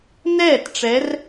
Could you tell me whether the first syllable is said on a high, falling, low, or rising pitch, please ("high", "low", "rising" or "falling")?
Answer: falling